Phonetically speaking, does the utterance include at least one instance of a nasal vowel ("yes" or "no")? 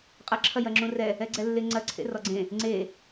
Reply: yes